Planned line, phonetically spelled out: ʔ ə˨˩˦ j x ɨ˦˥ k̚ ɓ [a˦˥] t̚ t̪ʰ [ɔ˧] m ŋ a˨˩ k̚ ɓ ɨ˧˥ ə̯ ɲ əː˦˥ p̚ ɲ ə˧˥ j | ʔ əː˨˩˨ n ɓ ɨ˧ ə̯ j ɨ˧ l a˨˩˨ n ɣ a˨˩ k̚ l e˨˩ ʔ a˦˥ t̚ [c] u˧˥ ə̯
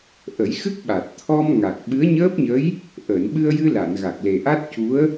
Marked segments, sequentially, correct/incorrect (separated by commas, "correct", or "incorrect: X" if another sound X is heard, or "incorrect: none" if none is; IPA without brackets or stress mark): incorrect: a˨˩, correct, correct